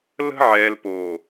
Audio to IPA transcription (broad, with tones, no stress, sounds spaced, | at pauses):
l ə̤˦ ʕ ɛː˨ l p oː˨